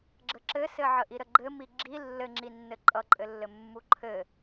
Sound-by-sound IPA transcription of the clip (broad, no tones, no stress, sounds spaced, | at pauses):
ɡ͡ǁ ə ǁ ɘ s ɘ ʕ ə ʔ i ɾ ə ɡ͡ǃ ɘ m i ɡ͡ǁ i lː ɘ ŋ͡ǁ i nː ɘ ǃʼ ʌ ǃʼ ɘ lː ɘ mː u ǃʰ ɘ